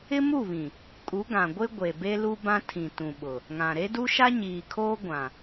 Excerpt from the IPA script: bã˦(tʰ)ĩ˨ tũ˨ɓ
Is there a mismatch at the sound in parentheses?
no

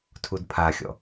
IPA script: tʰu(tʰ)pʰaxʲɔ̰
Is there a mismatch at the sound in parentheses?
yes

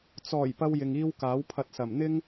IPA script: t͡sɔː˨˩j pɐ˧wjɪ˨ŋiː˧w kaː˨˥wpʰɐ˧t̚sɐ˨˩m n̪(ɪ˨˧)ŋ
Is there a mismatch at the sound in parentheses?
yes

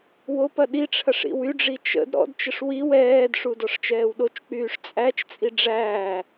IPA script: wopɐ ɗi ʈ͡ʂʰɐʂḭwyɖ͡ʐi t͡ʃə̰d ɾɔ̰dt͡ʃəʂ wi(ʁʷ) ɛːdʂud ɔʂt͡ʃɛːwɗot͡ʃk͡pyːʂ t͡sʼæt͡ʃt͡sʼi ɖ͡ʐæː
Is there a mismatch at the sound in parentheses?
yes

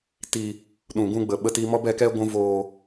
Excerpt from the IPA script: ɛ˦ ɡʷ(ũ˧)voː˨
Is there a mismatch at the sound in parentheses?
no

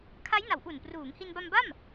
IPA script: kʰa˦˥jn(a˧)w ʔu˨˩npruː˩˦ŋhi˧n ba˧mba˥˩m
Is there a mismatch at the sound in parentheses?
yes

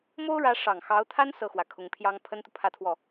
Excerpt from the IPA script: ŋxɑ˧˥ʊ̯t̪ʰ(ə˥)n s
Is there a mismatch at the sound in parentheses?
yes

